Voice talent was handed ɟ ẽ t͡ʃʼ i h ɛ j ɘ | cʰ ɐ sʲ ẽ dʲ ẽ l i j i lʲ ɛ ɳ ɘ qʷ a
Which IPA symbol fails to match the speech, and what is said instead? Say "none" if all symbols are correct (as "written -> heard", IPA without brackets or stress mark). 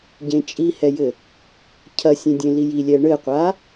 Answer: none